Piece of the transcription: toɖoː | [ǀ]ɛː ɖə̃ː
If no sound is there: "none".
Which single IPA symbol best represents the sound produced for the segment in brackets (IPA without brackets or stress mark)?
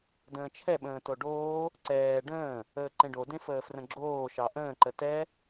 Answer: ǀ